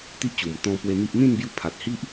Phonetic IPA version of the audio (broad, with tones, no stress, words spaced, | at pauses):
t̪i˦ʔt͡ɕu˨˩mt̪ɔ̃˧ pwe˧n̪i˦ʔ n̪ĩ˥˧nbju˧pʰa˨t̚hi˦ʔ